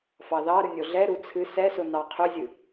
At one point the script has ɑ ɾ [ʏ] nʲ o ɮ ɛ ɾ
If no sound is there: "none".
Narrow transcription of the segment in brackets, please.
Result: ɨ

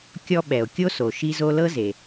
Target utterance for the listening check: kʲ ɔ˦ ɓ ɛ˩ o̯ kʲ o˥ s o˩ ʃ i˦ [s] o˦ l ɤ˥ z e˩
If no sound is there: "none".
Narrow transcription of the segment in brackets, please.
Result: z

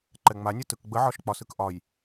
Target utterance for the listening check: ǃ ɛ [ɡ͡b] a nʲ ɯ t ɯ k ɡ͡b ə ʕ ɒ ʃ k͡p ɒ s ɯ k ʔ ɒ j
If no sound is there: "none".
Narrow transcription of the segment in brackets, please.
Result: ŋ͡m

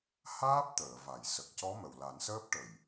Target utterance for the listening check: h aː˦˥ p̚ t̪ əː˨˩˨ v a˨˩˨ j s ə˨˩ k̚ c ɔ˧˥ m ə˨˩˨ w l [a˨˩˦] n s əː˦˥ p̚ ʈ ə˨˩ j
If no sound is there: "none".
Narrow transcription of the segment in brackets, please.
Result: a˨˩˦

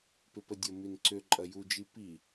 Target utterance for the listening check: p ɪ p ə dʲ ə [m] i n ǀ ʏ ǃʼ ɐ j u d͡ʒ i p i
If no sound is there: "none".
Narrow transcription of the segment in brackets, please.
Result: m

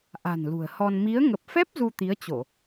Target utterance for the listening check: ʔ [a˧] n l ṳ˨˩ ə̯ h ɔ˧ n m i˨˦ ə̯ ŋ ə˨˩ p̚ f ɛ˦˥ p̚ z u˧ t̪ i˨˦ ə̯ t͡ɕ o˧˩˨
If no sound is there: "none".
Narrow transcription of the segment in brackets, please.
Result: a̤˨˩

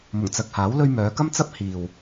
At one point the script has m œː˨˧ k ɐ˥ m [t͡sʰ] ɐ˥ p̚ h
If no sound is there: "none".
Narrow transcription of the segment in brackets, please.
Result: t͡s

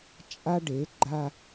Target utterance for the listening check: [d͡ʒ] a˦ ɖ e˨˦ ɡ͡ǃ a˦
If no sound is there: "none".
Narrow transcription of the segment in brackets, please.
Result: t͡ʃʼ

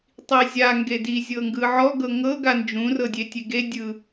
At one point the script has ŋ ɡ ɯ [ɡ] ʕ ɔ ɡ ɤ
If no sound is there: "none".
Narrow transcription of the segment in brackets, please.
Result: none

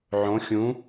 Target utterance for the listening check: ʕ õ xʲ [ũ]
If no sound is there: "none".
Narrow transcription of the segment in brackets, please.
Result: ũ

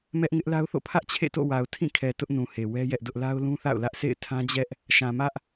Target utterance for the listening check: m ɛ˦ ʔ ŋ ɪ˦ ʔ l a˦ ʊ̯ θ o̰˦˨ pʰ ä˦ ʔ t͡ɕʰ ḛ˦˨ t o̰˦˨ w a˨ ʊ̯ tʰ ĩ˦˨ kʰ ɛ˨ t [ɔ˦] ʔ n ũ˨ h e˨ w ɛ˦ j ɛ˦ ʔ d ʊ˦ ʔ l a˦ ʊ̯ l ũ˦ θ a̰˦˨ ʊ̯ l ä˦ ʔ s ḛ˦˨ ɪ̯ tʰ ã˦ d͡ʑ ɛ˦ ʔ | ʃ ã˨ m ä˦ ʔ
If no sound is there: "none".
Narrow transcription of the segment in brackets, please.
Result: ʊ˦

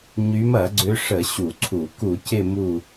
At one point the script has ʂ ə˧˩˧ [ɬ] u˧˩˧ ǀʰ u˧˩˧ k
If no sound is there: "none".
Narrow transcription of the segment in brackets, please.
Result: ɕ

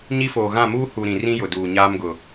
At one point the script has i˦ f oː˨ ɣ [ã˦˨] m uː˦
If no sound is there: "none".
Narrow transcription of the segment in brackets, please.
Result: ã˦˨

